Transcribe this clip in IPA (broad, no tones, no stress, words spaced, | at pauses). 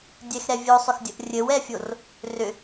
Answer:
dʲɛxɾɛ vʲosˤʏxdʲəʔ rʲɘwɛfʲor | rʏ